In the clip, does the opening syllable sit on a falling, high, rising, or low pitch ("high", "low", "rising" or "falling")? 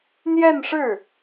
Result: falling